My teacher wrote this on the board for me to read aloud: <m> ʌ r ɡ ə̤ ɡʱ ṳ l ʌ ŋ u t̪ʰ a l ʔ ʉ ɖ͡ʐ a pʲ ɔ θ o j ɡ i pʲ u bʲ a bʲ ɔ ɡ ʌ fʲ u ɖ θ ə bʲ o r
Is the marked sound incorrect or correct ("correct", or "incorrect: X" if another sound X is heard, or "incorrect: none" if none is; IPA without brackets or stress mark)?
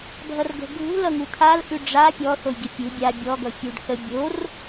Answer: incorrect: bʱ